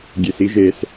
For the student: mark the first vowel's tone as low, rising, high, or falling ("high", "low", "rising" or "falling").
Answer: low